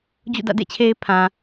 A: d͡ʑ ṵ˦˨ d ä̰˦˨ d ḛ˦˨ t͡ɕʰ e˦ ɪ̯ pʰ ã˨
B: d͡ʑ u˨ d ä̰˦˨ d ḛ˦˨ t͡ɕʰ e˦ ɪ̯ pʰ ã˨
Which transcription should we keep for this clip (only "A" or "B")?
A